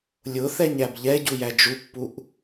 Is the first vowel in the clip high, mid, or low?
high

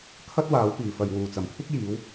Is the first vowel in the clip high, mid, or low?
low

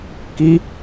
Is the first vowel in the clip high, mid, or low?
high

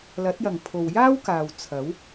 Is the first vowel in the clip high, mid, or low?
low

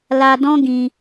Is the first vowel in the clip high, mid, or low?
low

